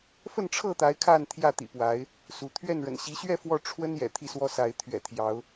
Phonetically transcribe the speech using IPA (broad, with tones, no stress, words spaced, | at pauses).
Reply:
fə˥˨nʈ͡ʂʰɤ˥˨t̪a˨˦ɪ̯ kʰa˥˨nt̪ʰjä˥˨t̪ḭ˨˩ pwa˨˦ɪ̯ | su˨˦ t̪ʰɥɛ˥˨nɻə̰˨˩n ɕi˨˦ɕɥɛ˥˨ fwɔ˥˨ʈ͡ʂʰwə˦n jɛ̰˨˩t̪ʰi˥˨swɔ˦sa˨˦ɪ̯ t̪ʰɥɛ̰˨˩t̪ʰjɑ˨˦ʊ̯